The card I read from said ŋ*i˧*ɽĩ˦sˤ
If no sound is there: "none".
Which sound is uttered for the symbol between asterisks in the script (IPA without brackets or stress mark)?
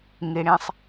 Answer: i˧